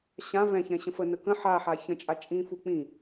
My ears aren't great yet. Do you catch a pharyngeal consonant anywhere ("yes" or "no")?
yes